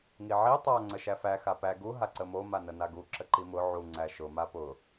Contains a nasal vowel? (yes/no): no